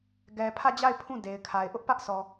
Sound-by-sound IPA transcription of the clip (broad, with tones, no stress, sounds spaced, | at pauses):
ɡ ɛ˨ pʰ ä˦˨ d͡ʑ a˦˨ ɪ̯ pʰ ũ˦˨ d e˨ ɪ̯ kʰ a˨ ɪ̯ ʔ ʊ˦ ʔ p ä˦ ʔ sʰ ɔ˨